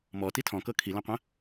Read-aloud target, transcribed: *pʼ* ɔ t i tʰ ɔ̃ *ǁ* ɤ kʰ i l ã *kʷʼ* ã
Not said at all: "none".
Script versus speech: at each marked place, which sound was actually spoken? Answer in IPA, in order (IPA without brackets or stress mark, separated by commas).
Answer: m, k, qʷ